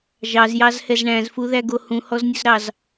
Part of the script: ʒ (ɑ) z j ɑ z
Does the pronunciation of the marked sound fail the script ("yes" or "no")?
no